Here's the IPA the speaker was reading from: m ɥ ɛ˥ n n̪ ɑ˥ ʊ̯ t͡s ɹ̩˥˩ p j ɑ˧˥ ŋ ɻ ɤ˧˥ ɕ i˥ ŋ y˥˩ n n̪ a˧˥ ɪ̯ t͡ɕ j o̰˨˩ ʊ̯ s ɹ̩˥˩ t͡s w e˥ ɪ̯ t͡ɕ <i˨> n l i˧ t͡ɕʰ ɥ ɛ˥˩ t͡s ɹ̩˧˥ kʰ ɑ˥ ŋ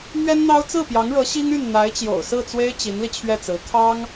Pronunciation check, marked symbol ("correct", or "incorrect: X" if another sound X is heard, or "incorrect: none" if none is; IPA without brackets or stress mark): incorrect: i˧˥